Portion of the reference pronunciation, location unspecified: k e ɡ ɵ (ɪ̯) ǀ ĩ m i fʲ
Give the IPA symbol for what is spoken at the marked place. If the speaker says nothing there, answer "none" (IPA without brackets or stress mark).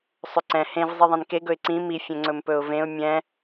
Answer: ɪ̯